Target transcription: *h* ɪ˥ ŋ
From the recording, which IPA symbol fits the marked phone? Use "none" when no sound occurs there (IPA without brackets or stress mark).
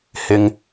h